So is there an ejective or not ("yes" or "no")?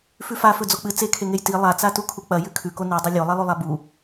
no